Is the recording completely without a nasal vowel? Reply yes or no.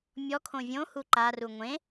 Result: no